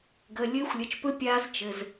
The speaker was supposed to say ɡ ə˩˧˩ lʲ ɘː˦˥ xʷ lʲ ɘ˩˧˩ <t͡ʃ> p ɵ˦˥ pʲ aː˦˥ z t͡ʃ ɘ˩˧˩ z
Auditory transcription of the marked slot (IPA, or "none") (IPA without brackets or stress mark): t͡ʃ